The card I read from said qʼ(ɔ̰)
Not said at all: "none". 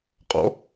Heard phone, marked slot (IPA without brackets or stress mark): ɔ̰